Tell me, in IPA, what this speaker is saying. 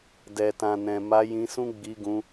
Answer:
dɛ˨tã˨nɛ̃˨ ma˧jĩ˧sũ˦ ɡ͡bi˧ɡũ˧

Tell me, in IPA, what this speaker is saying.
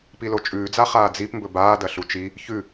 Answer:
pilot͡ʃʼʉːd͡za χaːd͡zip mbɵbaːdɐ ɬut͡ʃi | çʉ

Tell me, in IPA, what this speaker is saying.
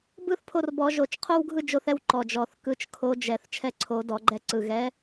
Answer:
bɯ˦θ pʰo˦˨rbɔ˧˩˧ʒo˧˩˧t͡ʃ qʰo˦wɡʱɯ˦ d͡ʒo˦θɛ˦w ǃɔ˨˩d͡ʒɔ˨˩θ kɯ˨˩t͡ʃ kʰo˨˦d͡ʒɛ˨˩θ t͡ʃʰɛ˦ǀʰo˨˦ dɔ˧˩˧ɡ͡ǃɛ˦˨ǀɯ˨˩ ɣɛ˨˦

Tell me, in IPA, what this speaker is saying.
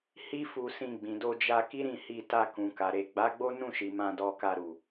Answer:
hi˦fu˧sĩ˧ ɡ͡bĩ˨do˧d͡ʒa˧ ki˦ɾĩ˦˨hi˧ta˧ kũ˨ka˨ɾe˨ ɡ͡ba˨˦ɡ͡bo˦ nũ˦˨ʃi˨ mã˧dɔ˧ka˧ɾu˨

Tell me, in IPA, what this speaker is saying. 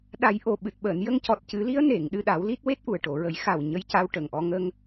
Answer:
ɗa˨˩˦j ʔo˨˩ɓɨ˨˩t̚ɓəː˨˩˨n jə˧ŋcɔ˨˩t̚cɨ˨˩˦li˧˥ə̯ ne˨˩˨ŋ ɗɨ˧ɗa˨˩˦wli˦˥t̚ we˦˥t̚ʔu˨˩ə̯ʈo˨˩˨ɹə˨˩˦j xa˨˩w ɲə˧jca˧wʈə˨˩ŋʔɔ˧ ŋə˧ŋ

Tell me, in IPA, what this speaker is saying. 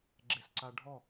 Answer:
ɡ͡ǁesǀaɖʱɔ

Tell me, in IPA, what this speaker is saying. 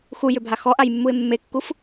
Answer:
xujʏbʱa xɔʔajmːuɪ̯ mːekːuf

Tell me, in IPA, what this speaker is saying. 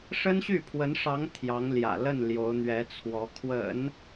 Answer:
ʂə˥nɕy˥˩pʰwə˧˥nʂɑ˧˥ŋ t̪ʰjɑ˧˥ŋljä̰˨˩ lə˥˩n ljo˧˥ʊ̯n̪ɥɛ˧˥t͡sʰwɔ˧˥ kʰwə̰˨˩˦n

